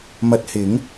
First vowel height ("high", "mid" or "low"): low